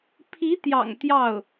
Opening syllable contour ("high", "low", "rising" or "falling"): rising